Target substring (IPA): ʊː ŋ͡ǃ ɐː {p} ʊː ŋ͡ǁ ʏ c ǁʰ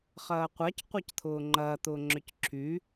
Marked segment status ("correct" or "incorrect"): incorrect